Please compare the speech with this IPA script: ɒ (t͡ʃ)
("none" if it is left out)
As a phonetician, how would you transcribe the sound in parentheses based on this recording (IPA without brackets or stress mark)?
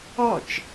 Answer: t͡ʃ